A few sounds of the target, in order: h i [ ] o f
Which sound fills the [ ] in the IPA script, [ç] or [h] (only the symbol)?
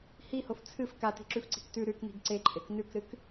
h